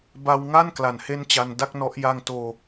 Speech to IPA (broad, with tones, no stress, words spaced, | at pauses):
ba˧wŋa˥˩n kla˨˩nhe˥˩nt͡ɕa˧n da˥˩k̚nɔ˦˥ʔ ja˧ŋtoː˧